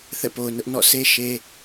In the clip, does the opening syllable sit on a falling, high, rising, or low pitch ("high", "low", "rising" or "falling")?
falling